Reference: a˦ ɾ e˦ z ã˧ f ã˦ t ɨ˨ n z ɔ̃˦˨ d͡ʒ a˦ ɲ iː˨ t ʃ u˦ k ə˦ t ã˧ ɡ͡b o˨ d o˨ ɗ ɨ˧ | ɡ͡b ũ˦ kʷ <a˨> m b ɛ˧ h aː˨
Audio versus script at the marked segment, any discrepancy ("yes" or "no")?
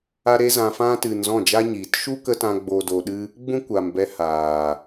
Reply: no